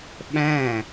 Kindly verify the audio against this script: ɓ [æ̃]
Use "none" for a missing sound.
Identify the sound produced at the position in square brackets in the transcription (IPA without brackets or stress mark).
æ̃